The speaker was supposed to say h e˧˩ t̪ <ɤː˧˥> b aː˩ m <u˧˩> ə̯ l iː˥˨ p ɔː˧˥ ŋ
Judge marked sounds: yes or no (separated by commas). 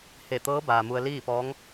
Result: yes, no